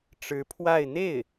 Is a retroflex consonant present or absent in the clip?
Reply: present